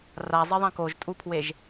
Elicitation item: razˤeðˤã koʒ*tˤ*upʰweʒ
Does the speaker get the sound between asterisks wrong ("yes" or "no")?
yes